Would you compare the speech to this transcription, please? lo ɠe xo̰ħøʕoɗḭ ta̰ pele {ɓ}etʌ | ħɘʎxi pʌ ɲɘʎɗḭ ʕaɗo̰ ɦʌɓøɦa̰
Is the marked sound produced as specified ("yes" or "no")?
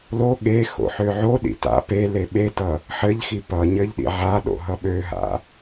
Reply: yes